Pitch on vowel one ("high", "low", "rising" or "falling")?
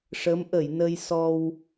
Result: rising